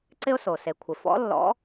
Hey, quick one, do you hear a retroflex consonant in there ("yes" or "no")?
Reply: no